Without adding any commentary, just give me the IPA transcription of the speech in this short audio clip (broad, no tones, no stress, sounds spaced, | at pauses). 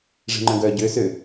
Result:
ʐ e̤ ŋ͡ǃ œ̃ ɡ œː ɟ ø s ø